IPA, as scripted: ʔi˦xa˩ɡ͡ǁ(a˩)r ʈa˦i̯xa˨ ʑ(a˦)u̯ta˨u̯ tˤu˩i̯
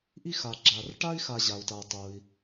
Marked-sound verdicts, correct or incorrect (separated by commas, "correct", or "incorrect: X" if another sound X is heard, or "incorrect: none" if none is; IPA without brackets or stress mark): correct, incorrect: a˩